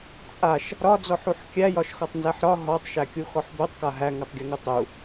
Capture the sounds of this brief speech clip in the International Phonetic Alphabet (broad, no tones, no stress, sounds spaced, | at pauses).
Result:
t͡sʼ a ʃ | ɾ ɒ d͡z ɔ ħ u ħ kʲ æ j ɒ ʃ x ɔ tˤ n z æ ħ ɾ ɒ ɦ ɔ tˤ ʃ æ kʲ u x ɔ ħ b u tˤ k a ɦ æ ŋ a tˤ ɡʲ u ŋ u tˤ u